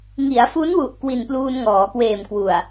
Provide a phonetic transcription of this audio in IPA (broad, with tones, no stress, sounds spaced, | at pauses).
ŋ i˩˦ a̯ f u˦˥ n w u˨˩ ʔ k w i˨˩ n p l uː˧ n ŋ ɔː˩˦ k w eː˨˩ m k w u˨˩ a̯